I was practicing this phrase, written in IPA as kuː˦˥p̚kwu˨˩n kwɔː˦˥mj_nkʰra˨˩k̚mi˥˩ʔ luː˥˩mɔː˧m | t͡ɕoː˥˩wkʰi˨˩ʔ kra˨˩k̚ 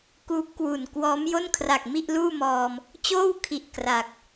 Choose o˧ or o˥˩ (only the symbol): o˥˩